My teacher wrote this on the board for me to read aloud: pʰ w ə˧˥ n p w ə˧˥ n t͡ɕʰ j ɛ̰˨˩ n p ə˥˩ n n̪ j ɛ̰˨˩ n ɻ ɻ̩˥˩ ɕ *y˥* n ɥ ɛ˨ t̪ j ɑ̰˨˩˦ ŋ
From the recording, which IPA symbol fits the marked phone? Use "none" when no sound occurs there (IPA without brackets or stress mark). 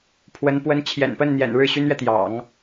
y˥